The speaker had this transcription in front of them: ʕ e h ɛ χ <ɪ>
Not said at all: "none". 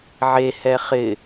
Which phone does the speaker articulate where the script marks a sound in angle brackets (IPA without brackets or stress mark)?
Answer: ɪ